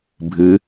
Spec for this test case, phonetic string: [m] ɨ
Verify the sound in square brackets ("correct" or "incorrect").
incorrect